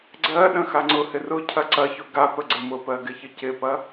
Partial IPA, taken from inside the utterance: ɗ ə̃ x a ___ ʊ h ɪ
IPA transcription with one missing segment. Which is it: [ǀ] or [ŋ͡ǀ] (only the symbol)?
ŋ͡ǀ